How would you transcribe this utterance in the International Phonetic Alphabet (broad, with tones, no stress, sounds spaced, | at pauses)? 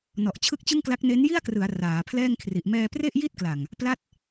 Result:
n ɔ˨˩ ʔ t͡ɕʰ ɯ˦˥ k̚ t͡ɕ ɯ˥˩ ŋ k l a˦˥ k̚ n e˦˥ n j i˥˩ a̯ k r ɯ˩˦ a̯ r aː˩˦ pʰ l ɛː˥˩ ŋ kʰ r i˨˩ ʔ m ɛː˧ p r e˥˩ ʔ j i˥˩ t̚ k l a˨˩ ŋ | p l a˦˥ t̚